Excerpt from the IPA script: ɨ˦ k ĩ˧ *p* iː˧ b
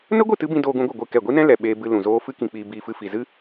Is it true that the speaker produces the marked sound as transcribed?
no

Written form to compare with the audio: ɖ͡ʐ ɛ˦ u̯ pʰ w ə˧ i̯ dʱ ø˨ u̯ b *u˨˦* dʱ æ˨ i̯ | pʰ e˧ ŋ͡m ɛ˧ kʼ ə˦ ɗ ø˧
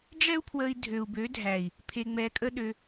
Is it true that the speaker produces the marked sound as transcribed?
no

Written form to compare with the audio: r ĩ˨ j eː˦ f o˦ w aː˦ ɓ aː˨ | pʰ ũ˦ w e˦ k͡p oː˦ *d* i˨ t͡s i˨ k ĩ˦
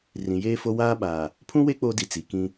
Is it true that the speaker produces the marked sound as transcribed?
yes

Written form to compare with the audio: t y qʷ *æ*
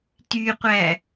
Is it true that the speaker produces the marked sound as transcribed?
yes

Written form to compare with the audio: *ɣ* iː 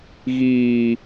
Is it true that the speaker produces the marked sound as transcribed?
yes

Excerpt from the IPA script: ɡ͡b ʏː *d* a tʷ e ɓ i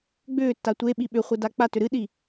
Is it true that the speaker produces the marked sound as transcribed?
no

